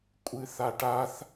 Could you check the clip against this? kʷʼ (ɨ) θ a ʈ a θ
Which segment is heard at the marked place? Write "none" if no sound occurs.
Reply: ɨ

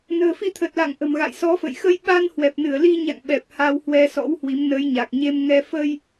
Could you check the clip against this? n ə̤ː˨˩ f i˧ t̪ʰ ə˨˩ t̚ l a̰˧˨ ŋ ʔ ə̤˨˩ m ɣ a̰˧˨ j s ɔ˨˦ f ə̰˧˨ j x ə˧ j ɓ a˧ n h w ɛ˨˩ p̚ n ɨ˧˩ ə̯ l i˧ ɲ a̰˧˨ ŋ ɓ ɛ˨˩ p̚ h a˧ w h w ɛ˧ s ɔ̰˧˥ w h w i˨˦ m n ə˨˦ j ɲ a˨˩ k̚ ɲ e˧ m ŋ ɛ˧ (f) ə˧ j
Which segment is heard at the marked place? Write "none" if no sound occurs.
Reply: f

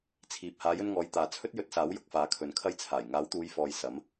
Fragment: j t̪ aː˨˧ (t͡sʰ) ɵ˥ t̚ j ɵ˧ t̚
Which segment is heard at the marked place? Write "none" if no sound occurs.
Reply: t͡sʰ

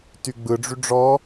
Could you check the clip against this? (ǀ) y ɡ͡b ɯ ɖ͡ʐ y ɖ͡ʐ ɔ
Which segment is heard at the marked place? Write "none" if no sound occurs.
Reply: t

